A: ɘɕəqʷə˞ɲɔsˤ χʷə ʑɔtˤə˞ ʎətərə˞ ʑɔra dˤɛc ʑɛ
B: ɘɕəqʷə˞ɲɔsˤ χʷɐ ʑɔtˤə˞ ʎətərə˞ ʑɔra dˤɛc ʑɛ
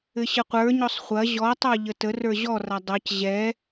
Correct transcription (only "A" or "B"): B